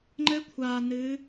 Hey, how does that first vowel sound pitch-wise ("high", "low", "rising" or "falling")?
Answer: rising